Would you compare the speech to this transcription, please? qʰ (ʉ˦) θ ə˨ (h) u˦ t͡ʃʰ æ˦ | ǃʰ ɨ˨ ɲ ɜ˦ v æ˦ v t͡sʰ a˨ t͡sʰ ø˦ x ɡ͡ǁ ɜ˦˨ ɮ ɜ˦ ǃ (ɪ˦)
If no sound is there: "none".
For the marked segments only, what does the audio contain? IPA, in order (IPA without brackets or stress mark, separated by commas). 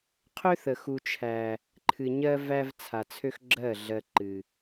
ø˦, x, ɨ˦